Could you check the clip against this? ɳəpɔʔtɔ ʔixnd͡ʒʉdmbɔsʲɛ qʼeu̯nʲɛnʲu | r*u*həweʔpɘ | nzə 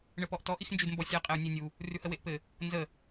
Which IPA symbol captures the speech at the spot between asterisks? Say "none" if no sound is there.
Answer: ʉ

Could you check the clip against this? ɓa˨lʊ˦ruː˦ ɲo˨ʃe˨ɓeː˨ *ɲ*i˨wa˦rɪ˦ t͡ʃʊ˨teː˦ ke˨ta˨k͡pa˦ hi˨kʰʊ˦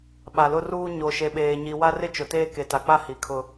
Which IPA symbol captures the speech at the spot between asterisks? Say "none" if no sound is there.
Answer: ɲ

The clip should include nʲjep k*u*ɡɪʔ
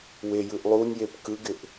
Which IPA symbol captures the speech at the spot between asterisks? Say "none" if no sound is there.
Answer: ɯ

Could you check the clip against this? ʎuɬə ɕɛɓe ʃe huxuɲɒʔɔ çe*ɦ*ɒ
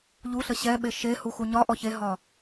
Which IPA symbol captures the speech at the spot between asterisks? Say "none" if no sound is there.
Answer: ɦ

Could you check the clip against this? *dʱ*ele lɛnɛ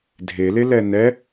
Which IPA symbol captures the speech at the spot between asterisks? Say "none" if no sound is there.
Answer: dʱ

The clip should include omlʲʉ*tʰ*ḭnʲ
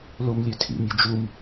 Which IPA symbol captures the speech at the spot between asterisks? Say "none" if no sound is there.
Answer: tʰ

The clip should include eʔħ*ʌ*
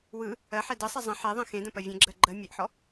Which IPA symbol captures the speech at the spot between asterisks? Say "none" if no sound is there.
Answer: ɔ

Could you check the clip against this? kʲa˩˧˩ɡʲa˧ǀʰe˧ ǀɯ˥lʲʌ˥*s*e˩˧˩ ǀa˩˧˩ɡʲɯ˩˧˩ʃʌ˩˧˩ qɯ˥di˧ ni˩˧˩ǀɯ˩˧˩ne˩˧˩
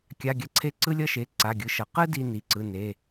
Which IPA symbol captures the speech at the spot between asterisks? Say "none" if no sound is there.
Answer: ʃ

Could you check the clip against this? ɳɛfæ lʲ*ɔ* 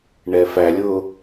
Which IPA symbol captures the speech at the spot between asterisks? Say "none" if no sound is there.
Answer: ʊ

